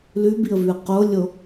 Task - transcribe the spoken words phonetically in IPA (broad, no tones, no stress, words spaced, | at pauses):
lʉbiə̯vʉə̯ qolʲo